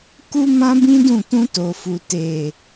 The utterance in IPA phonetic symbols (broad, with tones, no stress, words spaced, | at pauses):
ku˦mã˦bĩ˦dũ˦˨ tũ˧to˨fu˨ te˨